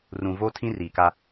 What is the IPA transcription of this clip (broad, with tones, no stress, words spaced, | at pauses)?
rũ˨vo˦tʰĩ˦ ri˨ka˦